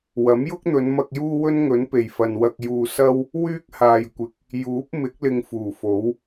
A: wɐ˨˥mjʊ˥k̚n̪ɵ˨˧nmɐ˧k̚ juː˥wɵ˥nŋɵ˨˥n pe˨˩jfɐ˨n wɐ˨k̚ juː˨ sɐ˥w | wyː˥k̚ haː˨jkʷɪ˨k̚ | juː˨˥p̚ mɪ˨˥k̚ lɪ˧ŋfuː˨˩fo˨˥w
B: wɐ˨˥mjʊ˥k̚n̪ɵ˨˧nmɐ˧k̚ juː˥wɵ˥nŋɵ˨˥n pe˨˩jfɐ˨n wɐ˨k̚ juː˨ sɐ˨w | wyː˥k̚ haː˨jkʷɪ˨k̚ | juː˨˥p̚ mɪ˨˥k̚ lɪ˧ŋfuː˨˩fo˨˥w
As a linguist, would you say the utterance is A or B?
A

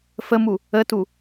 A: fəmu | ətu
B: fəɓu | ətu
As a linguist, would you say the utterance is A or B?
A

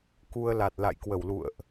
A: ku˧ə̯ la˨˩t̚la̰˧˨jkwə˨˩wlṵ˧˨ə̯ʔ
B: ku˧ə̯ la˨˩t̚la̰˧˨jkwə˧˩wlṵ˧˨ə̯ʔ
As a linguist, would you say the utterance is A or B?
B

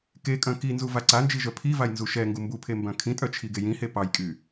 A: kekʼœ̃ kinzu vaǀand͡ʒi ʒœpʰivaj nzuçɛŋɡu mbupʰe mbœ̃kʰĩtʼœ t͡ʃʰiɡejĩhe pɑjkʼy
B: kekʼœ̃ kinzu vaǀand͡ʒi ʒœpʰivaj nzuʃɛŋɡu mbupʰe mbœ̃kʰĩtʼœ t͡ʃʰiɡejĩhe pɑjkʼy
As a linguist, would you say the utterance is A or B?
B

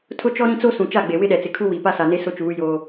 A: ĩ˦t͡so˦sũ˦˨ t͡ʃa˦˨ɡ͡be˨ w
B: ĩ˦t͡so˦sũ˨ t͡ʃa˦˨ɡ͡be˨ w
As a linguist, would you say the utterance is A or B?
B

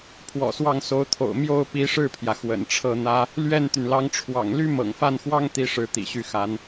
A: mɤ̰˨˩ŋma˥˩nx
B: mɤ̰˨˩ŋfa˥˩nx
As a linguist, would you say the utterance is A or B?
B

